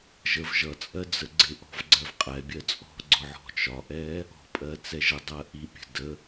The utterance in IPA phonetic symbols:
ʒəv ʒʌt͡sʼɜ d͡zəɡ͡ǀɪʔɔ̤v ɡ͡ǀɜvqʼɛbʲɜ t͡sʼɔ̤ɡ͡ǀʊ ʕɔ̤t͡ʃɒʔɛ | ɔ̤pʼɜ t͡sɛʒədˤɜ ʔipʲə̤ də

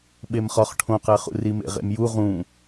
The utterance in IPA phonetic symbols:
ɓemχɒχ ʈʰõqæχṵ rimḛʁḛmju ʁũ

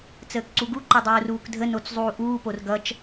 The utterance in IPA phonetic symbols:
t͡səːkǀuɡu ǃʌdˤuːruːkdʱə not͡szˤuːʔuːpor ɡʌt͡ʃ

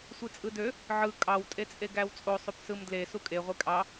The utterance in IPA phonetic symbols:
sʷit͡sʼɯdø | ʕɯ kʼɑw tʼet͡sʼeɡæwt͡sʼo sˤypsɯmdle sukʼe ʁʷekʼɑ

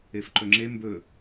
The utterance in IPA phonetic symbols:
efǃɵŋ͡ǁe mbɵ

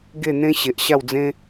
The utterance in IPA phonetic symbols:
ɡe˥˧n̪ẽ˦ ɕe˨ʔ ɕa˥˧wd͡zẽ˦

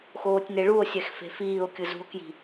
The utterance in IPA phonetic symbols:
xoːtʲneɭuo̯sʲɛx fe̤fiːo̯kʲɯ zṳo̯kji̤

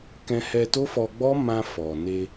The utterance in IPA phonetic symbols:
kɛ̃˧hɛ˧to˦fɔ˧ ɡ͡bɔ˦mã˧fɔ˨ ne˧

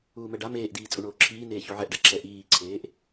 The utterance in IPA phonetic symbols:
uːmɛɖa meːʔdiː t͡sʼuɳoːǁʰiː neːçuʕɛʔɖa ǁɛʔiːǀʰeːʔ

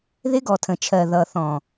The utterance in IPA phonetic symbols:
ðɪ˦ɡɔ˨tʰə̃˨t͡ʃʰɜ˨ ðʌ˨ θɔ̃˨

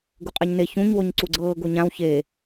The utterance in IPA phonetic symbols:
ɡuqʼɛɲne çũɲ woɲǀuɡ͡ǀɤː ɡoɲãw çe

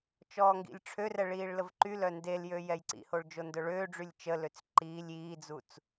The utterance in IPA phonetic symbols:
t͡ʃɔːŋɡḭlʲʈ͡ʂʰørɛ ɭiːɭləvǃylœ ndeljø jɛjǀḭhoɭ d͡ʒondœɭøːɖ͡ʐylʲ t͡ʃəløt͡s ǃiːlʲ iːd͡zut͡s

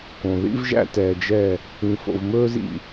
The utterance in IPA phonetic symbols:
kõ˨ ðḭ˦vʒæ̰˦tɛː˨d͡ʒɛ˦˨ | ĩ˨fo̰˨vmɵː˦zḭ˨

